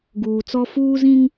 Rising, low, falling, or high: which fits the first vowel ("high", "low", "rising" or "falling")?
low